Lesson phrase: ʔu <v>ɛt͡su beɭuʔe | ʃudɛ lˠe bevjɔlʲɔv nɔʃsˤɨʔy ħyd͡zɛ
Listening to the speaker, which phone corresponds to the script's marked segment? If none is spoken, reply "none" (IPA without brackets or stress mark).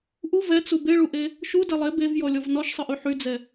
v